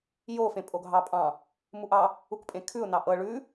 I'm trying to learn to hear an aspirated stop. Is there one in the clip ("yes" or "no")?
yes